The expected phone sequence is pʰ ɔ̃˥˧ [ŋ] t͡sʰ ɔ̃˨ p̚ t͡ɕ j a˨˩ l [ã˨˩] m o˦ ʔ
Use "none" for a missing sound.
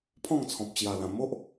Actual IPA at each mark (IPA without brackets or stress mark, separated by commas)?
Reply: ŋ, ã˨˩